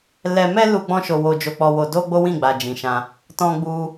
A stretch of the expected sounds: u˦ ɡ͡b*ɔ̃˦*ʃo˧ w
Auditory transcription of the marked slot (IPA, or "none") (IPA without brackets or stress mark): ɔ̃˦